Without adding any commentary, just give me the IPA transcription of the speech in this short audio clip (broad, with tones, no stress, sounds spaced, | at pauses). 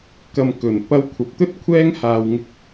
k ɐ˨ m k ɵ˨˩ n p ɐ˧ w kʷʰ ɐ˨˥ p̚ t̪ ɵ˥ t̚ kʷʰ ɛː˥ ŋ h aː˧ w ŋ ɪ˥ k̚